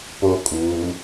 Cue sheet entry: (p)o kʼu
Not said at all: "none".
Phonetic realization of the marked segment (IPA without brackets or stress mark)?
p